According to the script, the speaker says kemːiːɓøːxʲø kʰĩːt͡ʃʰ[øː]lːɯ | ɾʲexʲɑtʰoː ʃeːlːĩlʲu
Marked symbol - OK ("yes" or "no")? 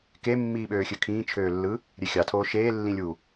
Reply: yes